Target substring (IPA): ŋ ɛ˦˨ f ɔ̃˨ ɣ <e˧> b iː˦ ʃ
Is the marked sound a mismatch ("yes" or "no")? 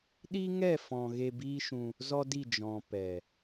no